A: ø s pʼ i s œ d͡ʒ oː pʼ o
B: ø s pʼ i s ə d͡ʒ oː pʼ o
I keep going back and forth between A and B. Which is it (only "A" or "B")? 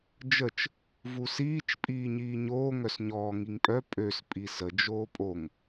B